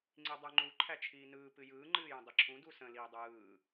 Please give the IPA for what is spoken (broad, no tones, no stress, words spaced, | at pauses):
ŋ͡ǀidˤɯŋ͡ǃu ǃʰæt͡ʃʰiːnɯː pɨjɯː ŋ͡ǃɨːjə̃dˤiǁʰũ dusə̃ liːdˤɯː